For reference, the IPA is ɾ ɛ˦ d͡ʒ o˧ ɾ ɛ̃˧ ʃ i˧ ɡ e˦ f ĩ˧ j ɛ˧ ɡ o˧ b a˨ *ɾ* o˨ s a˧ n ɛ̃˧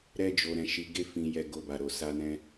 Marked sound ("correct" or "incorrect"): correct